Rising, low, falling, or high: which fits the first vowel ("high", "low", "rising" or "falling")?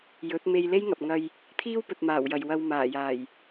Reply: rising